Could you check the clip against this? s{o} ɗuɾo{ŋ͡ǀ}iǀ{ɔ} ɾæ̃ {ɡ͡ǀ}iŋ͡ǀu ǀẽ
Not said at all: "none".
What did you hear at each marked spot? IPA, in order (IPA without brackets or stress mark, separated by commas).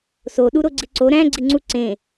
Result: o, ɡ͡ǀ, o, ɡ͡ǀ